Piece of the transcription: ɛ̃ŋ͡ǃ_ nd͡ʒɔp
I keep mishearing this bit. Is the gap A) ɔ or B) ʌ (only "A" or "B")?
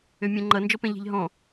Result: B